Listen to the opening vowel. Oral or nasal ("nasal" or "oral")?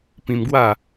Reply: nasal